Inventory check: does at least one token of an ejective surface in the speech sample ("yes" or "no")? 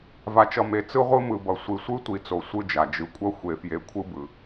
yes